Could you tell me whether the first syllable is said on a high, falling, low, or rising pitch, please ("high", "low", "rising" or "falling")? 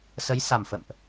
rising